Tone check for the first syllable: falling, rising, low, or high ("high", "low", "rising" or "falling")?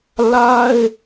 high